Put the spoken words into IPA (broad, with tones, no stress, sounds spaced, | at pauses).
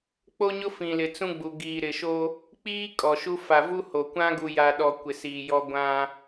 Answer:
k͡p o˦ ɲ ʊ˦ f ĩ˨ l ɪ˨ t͡s ũ˦ ɡ͡b u˨ ɡ iː˨ ɾ ɪ˨ ʃ o˦ | k͡p iː˦ kʼ ɔ˨ ʃ u˦ f a˨ v u˦ h o˨ kʷ ã˦ ɡ u˨ j a˨ ɗ ɔ˨ kʷ ɪ˨ s iː˨ j ɔ˦ ɡʷ ã˦